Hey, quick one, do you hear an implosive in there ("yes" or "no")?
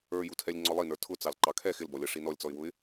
no